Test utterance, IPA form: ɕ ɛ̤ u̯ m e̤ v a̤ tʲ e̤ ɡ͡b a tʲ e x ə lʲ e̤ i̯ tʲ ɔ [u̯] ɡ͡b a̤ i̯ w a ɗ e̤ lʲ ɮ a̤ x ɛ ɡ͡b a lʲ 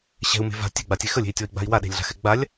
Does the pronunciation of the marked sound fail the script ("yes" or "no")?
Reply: yes